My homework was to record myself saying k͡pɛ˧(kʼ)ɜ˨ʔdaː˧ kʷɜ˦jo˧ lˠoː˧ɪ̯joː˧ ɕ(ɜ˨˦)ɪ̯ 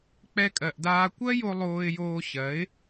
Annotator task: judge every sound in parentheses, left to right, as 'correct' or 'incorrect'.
correct, correct

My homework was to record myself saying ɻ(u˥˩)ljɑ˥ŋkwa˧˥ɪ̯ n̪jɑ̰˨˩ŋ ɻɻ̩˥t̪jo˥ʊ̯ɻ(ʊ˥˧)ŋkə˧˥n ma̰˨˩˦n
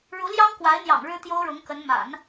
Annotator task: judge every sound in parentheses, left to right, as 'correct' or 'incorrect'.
incorrect, incorrect

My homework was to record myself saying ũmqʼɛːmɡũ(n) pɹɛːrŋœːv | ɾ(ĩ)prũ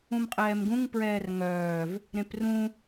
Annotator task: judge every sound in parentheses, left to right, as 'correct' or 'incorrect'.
incorrect, incorrect

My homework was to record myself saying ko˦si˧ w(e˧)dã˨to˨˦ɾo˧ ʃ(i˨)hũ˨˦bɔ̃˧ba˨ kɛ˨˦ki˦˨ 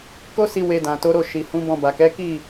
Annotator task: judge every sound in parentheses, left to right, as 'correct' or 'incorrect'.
correct, correct

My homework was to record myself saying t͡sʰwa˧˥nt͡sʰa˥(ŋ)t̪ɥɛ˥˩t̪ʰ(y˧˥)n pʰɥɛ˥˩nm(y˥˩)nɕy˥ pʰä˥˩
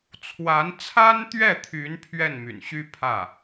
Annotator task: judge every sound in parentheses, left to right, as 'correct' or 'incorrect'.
incorrect, correct, incorrect

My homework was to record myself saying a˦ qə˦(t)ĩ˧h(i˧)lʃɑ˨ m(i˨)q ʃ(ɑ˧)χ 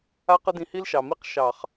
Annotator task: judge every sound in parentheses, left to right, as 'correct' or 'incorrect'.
incorrect, incorrect, incorrect, incorrect

